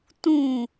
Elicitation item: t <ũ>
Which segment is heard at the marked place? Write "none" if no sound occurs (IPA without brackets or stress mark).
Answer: ũ